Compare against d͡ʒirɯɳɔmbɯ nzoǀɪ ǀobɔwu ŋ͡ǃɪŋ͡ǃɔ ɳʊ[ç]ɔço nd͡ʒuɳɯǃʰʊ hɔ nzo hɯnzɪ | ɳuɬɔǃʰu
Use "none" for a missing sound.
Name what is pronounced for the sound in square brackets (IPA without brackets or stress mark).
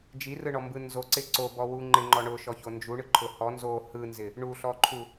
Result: ʃ